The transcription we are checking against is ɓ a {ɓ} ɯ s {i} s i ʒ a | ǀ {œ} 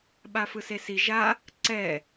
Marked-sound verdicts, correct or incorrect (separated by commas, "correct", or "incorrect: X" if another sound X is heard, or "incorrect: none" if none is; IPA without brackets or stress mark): incorrect: f, incorrect: e, incorrect: ɛ